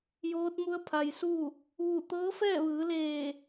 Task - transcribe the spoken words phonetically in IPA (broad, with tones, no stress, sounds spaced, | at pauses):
j oː˧˥ t̚ m u˧˥ ə̯ pʰ a˩ j s u˥˨ | ʋ u˧˩ t̪ ɤː˧˥ f ɛː˥˨ ʋ ɯː˩˧ l eː˧˩